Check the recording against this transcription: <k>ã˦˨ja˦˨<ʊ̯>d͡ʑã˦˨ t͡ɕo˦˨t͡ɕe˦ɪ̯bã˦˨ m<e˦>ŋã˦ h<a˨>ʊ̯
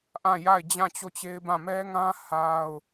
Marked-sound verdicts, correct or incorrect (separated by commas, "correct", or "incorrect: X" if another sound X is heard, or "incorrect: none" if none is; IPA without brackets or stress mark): incorrect: ʔ, incorrect: ɪ̯, incorrect: ɛ˦, incorrect: a˦